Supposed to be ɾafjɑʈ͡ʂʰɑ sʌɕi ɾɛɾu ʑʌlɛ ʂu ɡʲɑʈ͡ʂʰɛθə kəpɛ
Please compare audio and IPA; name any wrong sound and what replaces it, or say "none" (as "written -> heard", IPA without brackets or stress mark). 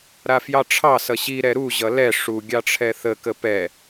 none